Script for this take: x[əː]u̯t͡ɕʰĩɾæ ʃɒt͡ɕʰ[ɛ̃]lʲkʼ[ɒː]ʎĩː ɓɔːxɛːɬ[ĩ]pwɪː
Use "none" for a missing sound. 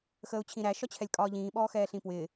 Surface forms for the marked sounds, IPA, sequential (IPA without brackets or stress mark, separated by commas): əː, ɛ, ɒː, ĩ